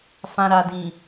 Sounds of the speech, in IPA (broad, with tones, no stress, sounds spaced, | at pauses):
f ã˨ ɾ a˨ d ĩ˨